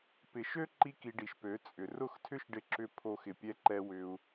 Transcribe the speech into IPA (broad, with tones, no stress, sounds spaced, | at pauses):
p ɪ˨ ʃ ø˦ ǃ i˦ k i˧ ɖ i˨ ʃ p ø˨˦ t͡sʼ ʏ˨ r ʊ˦˨ x tʰ ʏ˦ ʃ ɖ ɪ˧ ǁ ʏ˧ pʰ o˧ x ɪ˨ pʲ ɛ˧ ǃ ɛ˧ w ʏ˧ u̯